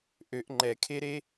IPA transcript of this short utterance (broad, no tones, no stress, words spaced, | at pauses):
ʔøʔ ŋ͡ǃɛkʰeɾe